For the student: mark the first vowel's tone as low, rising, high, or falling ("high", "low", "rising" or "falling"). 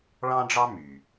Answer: high